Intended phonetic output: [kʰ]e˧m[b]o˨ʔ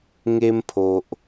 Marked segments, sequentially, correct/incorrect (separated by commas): incorrect, incorrect